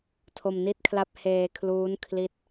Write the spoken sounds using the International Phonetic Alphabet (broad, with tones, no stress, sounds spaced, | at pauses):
tʰ o˧ m n i˥˩ t̚ kʰ l a˥˩ p̚ h eː˧ kʰ l uː˦˥ n kʰ l i˦˥ t̚